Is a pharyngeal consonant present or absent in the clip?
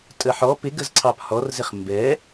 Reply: present